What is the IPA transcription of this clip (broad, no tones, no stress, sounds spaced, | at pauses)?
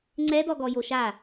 ŋ͡ǀ ɛ d ɔ ɡ ɔ j o ʃ a